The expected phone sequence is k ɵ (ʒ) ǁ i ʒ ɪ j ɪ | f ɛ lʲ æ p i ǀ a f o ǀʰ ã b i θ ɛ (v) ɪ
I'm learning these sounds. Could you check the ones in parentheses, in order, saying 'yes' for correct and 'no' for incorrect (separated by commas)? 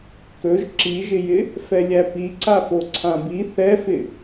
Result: yes, no